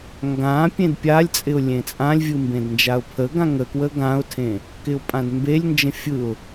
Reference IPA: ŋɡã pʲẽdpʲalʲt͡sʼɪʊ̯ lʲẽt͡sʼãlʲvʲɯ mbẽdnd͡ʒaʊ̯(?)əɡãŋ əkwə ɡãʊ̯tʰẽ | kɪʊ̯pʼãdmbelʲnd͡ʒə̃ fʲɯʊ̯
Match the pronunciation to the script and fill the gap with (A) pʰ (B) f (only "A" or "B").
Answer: A